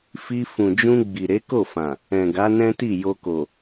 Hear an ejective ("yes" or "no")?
no